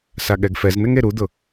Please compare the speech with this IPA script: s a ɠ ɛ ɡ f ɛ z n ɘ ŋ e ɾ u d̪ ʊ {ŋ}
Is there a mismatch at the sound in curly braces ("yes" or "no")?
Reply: yes